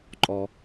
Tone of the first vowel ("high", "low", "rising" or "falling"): low